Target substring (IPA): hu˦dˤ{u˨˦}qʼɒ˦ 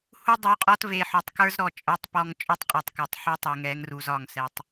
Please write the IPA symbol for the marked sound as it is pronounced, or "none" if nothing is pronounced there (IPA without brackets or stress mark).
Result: u˨˦